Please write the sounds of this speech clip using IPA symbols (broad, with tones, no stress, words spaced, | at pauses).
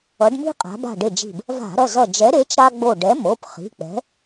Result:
ʌ˩˧ɖmi̤˦ qʼa̤˩˧ba̤˧˩ɖe˧˩d͡ʒi̤˧˩b | va̤˧˩˧ɾʌ˩˧˩ zʌ˧˩d͡ʒɛ˨˥ɾe˨˥t͡ʃ ɾa˦ɡ͡bo˧˩ ɖɛ˨˥mo˩˧˩p χi̤˩˧˩k͡pɛ̤˨˥